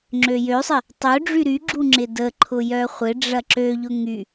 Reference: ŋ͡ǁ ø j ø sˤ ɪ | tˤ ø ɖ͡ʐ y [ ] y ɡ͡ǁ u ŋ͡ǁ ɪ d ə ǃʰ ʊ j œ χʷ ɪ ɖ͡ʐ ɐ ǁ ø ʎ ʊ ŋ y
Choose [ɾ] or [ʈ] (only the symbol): ɾ